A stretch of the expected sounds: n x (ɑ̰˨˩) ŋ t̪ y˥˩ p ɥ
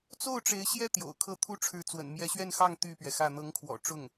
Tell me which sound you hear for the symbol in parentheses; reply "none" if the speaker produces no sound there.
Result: ɑ˥˧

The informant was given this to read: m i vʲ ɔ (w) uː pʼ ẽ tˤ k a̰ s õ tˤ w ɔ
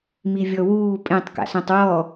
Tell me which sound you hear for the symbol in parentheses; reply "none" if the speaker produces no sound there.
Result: w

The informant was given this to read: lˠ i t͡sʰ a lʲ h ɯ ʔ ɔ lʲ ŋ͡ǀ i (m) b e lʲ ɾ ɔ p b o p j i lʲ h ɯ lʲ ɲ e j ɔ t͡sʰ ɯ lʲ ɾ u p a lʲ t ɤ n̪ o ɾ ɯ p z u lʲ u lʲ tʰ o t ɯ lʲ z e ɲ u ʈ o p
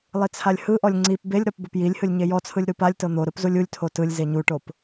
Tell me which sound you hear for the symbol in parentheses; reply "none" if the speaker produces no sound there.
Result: p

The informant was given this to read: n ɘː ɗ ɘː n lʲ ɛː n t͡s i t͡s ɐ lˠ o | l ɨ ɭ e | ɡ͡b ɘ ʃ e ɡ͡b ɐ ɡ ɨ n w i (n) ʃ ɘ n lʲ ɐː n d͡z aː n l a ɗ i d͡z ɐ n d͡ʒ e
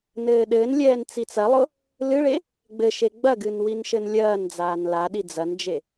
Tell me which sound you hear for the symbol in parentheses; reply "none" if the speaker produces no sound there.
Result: n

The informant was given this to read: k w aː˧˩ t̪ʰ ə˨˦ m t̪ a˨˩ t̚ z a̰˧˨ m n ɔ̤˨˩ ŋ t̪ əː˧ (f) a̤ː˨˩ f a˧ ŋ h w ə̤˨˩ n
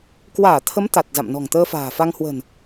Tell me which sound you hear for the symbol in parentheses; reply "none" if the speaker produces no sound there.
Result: f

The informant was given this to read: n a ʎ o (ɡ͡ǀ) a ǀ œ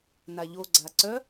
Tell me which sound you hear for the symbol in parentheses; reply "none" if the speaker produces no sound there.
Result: ɡ͡ǀ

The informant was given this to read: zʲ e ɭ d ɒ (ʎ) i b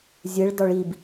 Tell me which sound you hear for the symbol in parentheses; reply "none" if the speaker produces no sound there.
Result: ɭ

